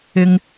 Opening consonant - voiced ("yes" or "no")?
yes